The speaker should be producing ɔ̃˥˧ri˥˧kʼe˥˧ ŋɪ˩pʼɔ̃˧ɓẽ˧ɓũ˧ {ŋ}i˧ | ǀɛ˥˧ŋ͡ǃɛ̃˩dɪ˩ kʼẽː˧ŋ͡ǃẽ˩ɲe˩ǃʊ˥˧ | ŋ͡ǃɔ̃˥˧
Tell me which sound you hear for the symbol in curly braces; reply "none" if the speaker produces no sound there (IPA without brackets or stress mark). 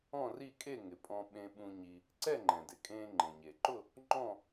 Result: ɲ